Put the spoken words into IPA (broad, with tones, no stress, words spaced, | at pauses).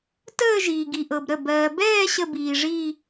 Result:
təː˥˧ ʒiː˨ɡi˨ʔɤ˨bɾə˥˩ bɜː˨bɛː˥˧ ɕə˥˧biː˨ʐi˥˧